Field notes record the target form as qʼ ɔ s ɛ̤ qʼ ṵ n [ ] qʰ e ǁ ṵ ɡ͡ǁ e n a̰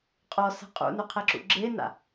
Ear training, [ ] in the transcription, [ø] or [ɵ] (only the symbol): ø